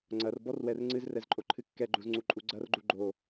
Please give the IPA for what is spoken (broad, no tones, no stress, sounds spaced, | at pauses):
ŋ͡ǀ ɐ r b ɔ r w ɛ r ŋ͡ǀ ɨ z r ɛ z ǃʼ o ǃʰ ɨ kː ɛ ɡ͡ǃ u z ŋ͡ǀ u ǃʼ u ɡ͡ǀ ɐ r ɡ͡ǃ u ɡ͡ǃ o